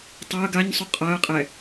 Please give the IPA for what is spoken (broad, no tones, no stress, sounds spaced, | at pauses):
tˤ a ə̯ ɡ a ɲ sˤ u qʼ a ə̯ qʼ ɛ